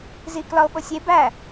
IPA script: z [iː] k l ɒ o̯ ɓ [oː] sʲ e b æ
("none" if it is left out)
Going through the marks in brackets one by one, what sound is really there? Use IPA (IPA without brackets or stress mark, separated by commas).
iː, o